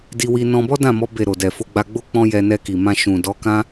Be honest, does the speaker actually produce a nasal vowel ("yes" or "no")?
yes